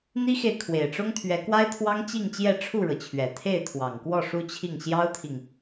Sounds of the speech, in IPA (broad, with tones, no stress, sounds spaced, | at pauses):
n̪ i˥ x e˨ ɪ̯ kʰ w e˨˩ ɪ̯ ʈ͡ʂ ʊ˥ ŋ t̪ʰ ɥ ɛ˧˥ k w a˥ ɪ̯ t̪ʰ w ɑ˥ ŋ t͡ɕ i˥˧ ŋ t͡ɕ j ɛ˥˧ ʈ͡ʂʰ u˥˩ ɻ ɤ˩ t͡ɕʰ ɥ ɛ˨˩ t̪ʰ e˥˩ ɪ̯ t̪ʰ w ɑ˨˩ ŋ k w ɔ˥˩ ʂ u˥ t͡ɕʰ i˥˩ ŋ ɕ j ɑ˥ ʊ̯ t̪ʰ i˨ ŋ